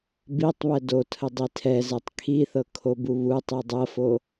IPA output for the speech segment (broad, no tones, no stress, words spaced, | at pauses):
bitˤβɛ dotʰə dˤitʰɛzɛtˤ kʰiθɤ kʰobuβutˤi dˤɤfo